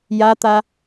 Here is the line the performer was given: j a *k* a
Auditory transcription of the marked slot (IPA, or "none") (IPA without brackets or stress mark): t̪